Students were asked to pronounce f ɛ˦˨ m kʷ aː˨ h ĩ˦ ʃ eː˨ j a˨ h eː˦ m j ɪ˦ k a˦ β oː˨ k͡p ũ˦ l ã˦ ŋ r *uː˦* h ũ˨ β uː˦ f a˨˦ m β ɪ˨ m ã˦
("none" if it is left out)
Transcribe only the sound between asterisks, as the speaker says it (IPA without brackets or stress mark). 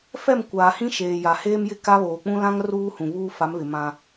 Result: uː˦